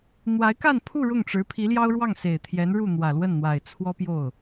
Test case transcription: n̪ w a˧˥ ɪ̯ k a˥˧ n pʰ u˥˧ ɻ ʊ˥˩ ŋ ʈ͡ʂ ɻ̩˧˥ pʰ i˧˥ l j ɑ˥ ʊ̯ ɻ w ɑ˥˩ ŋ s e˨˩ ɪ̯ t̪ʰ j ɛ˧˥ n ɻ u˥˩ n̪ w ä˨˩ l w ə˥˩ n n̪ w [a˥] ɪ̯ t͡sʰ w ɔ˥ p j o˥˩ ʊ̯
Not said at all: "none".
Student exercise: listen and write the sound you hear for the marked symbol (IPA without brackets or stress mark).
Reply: a˨˩